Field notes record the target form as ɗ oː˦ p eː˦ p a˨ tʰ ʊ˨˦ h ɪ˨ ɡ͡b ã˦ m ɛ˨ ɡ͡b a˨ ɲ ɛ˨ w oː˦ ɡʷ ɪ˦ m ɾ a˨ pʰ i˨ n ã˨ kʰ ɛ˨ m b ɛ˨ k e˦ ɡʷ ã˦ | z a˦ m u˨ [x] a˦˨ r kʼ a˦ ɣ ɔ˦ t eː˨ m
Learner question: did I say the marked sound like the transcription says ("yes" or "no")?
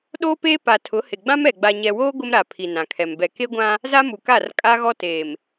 no